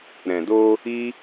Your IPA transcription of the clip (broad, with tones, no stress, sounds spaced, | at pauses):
ɾ ɛ̃˨ d o˧ | i˦